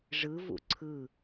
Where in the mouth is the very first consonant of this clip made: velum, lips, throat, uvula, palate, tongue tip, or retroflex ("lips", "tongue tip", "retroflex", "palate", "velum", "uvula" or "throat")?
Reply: retroflex